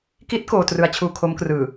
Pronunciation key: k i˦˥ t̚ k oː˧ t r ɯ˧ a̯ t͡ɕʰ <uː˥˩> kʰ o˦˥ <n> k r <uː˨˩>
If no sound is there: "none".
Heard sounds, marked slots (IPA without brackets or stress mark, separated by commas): uː˧, m, ɯː˨˩